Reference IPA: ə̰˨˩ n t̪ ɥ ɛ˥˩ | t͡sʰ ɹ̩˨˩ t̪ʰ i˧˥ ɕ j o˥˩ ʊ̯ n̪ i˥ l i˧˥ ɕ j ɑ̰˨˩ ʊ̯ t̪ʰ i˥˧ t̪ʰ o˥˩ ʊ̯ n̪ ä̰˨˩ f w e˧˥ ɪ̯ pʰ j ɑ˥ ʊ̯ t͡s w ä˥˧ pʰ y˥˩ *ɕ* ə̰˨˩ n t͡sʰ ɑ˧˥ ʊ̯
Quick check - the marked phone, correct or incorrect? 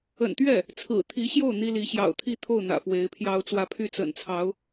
incorrect